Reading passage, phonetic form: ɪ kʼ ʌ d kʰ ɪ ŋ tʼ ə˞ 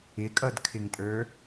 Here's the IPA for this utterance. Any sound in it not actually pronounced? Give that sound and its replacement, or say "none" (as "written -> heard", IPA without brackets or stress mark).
none